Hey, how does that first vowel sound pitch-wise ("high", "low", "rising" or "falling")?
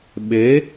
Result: rising